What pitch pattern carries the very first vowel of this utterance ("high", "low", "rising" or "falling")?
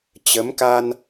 rising